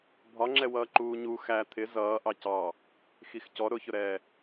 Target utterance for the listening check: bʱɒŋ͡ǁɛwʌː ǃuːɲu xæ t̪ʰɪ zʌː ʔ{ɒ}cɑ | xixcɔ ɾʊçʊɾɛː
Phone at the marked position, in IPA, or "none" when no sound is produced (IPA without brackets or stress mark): ɑ